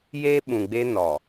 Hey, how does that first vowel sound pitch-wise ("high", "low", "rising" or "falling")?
high